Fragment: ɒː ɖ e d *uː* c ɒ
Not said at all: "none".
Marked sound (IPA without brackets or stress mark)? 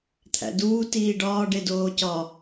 oː